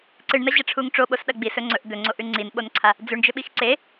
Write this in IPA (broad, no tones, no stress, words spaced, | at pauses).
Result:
ǀɨɳnɐʑɐʈ͡ʂʰuŋ ʈ͡ʂoɓosɗɐ ɡ͡bisɵ ŋ͡ǀɵʔ d̪ɵŋ͡ǀoʔʉ ŋ͡ǀinɓonǀʰa | d͡zʉɳd͡ʒɵɓix ǀe